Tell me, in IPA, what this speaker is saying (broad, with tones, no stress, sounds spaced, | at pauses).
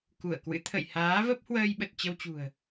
k u˧˩ ə̯ k w ɨ̰˧˥ t̪ʰ ə̰˧˨ j h aː˨˦ v ə˦˥ p̚ h w əː˧ j ɓ ə˨˩ t̚ t͡ɕ ə˧ w t͡ɕ ṳ˨˩ ə̯